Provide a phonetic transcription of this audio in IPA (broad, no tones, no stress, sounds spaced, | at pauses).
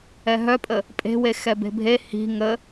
ɛ ɦ œ pʼ ə | pʼ e̤ w e x ɛ b e̤ bʱ e h i̤ ŋ ə